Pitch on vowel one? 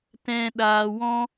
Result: low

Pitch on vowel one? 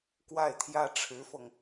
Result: falling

